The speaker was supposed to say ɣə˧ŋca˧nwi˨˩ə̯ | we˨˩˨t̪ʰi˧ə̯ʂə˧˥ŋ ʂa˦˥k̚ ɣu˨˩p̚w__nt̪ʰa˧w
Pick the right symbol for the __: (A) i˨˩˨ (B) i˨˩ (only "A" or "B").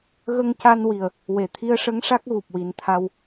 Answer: B